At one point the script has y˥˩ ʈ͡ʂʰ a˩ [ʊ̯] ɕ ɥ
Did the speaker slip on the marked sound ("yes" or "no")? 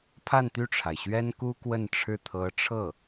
yes